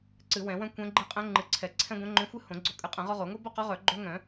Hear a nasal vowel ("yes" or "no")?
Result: yes